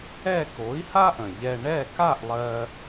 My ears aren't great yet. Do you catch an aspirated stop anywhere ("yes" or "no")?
no